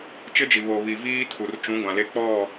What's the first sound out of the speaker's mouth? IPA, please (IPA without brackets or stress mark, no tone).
t͡ʃ